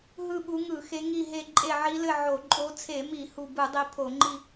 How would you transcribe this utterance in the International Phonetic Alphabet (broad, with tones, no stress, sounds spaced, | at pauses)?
ɦ ɯ˦˨ ɓ u˨˦ ŋ ɯ˧˩˧ x e˨˦ ŋ i˦˨ ɦ e˦˨ ǃʼ e˦˨ ʕ i˨˦ l ɘ˦˨ ʕ o˧˩˧ ǃʼ o˨˦ t͡sʰ e˧˩˧ m i˧˩˧ h u˦˨ b ɯ˧˩˧ dˤ i˨˦ pʰ o˧˩˧ ŋ͡ǃ i˦˨